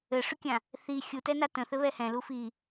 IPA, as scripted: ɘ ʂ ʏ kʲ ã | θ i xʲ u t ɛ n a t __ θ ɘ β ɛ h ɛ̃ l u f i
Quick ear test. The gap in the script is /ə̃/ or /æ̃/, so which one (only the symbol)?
ə̃